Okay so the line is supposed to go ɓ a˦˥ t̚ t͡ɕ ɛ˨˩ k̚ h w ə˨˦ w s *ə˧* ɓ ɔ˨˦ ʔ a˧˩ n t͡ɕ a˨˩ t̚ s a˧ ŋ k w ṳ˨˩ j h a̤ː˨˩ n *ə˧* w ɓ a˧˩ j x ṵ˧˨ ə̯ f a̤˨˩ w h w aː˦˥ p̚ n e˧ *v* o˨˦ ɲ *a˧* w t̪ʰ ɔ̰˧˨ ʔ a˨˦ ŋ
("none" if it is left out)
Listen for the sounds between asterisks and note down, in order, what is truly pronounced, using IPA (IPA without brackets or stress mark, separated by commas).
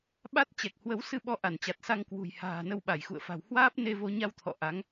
ɨ˧, ə˧, v, a˧